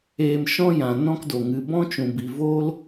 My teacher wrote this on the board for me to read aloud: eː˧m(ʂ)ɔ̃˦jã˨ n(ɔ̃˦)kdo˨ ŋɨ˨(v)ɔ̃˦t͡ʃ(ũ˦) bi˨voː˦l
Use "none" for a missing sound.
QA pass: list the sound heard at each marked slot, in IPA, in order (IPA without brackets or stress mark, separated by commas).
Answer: ʃ, ɔ̃˦, b, ũ˨